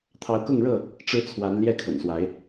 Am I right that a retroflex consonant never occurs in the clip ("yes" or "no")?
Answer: no